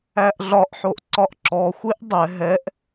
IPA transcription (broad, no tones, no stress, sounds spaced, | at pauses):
æ ʔ ɮ ɒ ʔ ħ o ʔ ǀ ɒ ʔ ǁ ɔ xʷ e ʔ dˤ ɛ ɦ ɛ ʔ